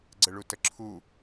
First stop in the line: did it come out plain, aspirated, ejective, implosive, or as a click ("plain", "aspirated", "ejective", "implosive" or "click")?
click